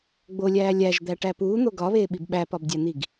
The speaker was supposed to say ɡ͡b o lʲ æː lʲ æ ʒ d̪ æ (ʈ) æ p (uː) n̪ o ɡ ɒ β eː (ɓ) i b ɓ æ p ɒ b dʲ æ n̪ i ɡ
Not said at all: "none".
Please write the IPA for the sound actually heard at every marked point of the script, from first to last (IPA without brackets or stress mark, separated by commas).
ʈ, uː, ɓ